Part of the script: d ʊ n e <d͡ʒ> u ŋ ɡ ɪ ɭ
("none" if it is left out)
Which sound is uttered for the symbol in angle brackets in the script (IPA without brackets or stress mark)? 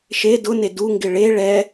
d